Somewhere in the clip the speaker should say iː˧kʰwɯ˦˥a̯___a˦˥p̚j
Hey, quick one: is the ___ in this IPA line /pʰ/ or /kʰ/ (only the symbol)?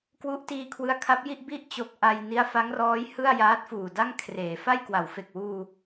kʰ